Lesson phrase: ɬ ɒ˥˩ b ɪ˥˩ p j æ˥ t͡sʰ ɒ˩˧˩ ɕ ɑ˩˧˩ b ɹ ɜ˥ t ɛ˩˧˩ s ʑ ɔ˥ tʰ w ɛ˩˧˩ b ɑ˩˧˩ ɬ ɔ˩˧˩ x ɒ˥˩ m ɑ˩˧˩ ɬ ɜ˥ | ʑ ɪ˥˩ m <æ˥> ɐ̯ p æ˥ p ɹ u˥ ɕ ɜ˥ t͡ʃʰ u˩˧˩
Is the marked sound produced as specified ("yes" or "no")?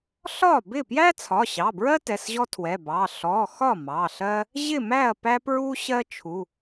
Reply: no